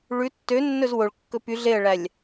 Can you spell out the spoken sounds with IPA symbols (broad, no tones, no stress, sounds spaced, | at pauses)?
ɭ ʉ tː ø nː ɵ z w o ɭ kː ɵ p y ɮ e ə̯ ɭ æ lʲ